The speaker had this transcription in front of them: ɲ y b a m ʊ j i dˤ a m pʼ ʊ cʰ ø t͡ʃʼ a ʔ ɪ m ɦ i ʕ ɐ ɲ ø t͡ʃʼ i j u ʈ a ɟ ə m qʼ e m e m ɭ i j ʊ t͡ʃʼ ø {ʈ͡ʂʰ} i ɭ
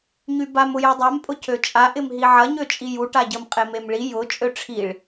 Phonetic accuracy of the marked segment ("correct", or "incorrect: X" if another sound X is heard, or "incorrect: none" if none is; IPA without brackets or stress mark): correct